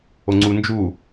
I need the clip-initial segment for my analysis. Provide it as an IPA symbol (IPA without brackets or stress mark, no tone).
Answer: o